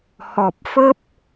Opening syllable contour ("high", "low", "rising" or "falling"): low